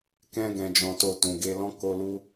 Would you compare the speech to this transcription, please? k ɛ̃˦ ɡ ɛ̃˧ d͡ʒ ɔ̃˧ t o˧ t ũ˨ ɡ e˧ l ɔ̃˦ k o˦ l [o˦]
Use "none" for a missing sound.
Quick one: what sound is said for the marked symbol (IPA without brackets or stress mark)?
u˦